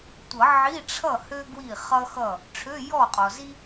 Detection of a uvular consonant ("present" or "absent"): present